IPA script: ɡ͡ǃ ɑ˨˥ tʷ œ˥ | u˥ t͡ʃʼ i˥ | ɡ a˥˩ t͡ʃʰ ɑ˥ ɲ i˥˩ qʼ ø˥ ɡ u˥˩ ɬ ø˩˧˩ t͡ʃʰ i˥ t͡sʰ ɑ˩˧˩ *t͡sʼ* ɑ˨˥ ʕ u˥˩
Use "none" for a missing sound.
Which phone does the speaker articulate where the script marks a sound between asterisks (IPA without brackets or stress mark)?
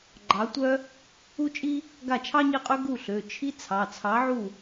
t͡sʰ